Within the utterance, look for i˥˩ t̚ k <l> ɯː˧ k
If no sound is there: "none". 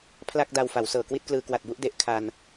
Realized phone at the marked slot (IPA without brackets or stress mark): l